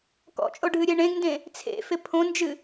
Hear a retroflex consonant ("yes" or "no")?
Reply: yes